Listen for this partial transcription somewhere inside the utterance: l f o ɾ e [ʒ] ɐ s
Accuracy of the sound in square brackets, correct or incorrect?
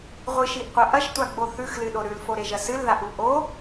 correct